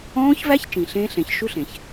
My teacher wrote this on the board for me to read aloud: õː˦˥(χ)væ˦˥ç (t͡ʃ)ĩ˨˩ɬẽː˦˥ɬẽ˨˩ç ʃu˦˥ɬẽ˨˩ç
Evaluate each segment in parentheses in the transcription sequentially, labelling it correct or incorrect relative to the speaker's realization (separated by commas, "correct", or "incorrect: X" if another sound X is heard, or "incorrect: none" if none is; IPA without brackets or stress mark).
incorrect: ç, correct